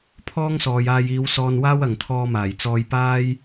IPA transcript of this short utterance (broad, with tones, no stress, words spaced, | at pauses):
pʰɔː˥ŋsɔː˨jaː˧j iː˨˧wsɔː˧nwaː˥w ɐ˨ŋt̪ʰɔː˧maː˨˩j t͡sɔː˧jpaː˥j